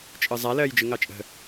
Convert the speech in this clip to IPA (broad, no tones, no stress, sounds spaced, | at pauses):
t͡ʃʼ ɯ zˤ a l ɜː j d͡ʒ ɯ ŋ ɑ t͡ʃʼ ə̤